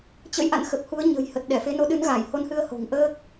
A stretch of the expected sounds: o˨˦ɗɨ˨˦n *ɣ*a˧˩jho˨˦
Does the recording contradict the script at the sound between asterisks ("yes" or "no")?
no